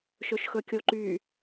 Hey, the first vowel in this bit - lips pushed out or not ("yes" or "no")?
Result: yes